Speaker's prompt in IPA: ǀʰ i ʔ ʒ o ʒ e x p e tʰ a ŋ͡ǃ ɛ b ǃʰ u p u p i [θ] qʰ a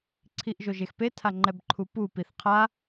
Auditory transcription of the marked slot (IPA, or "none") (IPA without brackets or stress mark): θ